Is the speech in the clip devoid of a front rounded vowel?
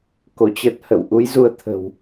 yes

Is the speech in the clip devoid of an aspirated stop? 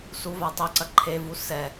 no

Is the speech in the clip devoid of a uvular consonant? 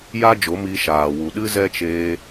yes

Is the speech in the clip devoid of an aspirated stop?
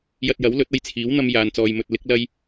no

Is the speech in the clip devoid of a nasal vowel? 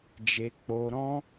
no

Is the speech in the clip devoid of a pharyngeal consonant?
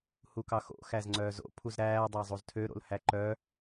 yes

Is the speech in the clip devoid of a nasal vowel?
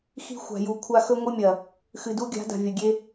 yes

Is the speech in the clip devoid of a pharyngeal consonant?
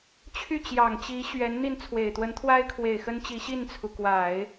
yes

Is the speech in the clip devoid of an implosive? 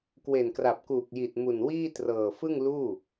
yes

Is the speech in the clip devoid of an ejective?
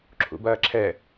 yes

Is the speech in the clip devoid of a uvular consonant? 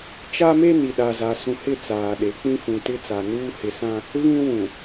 yes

